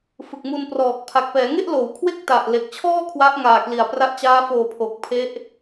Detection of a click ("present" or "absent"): absent